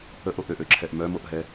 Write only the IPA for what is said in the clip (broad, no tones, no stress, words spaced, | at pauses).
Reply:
əʔoʔ øʔøǁʰɛʔ mœmoʔɦɛ